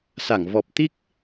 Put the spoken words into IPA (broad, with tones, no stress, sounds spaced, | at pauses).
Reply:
s a˧˩ ŋ v ɔ˨˩ p̚ t̪ i˦˥ k̚